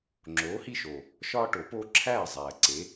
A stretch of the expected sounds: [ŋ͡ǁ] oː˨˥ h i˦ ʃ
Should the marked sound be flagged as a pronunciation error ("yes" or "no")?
no